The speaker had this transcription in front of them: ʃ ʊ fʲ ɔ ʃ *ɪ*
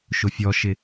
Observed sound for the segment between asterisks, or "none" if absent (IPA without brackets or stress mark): ɪ